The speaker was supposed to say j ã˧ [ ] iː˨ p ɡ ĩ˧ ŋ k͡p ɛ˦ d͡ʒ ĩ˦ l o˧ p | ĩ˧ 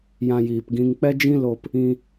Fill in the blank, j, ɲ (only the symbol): j